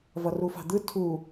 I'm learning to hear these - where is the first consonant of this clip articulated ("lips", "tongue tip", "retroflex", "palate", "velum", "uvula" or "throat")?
lips